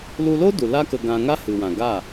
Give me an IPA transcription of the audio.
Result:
l u˧ l o˦ d u˨ l a˦ k ə˧ ɡ ã˧ ŋ a˦ h ɨ˨ w ã˨ ɡ a˦˨

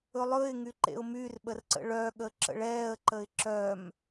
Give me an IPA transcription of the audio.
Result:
ɵ lˠ ɵ ɪ̯ ŋ y ǃ ḛ ʊ̯ m y r ɓ ə r ǀ ə̰ ɭ œ ɠ ə ǁ ə̰ ɭ ɛː ə̯ ǃ ə ɪ̯ ǁ œ m

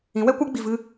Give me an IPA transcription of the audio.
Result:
ĩ˨˦ w ɛ˦ kʷ a˦ ɡ͡b i˨ v ɨ˧

